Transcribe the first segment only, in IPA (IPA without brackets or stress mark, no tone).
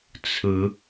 t͡sʰ